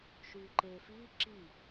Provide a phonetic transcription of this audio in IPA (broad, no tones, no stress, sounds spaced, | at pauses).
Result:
ʃ yː ǃ eː f iː ǁ i